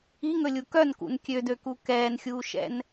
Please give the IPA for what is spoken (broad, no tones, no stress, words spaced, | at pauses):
iŋɵlʲu kœnkṵn kʲødøku kɛːnxʲuːʃɛ̰n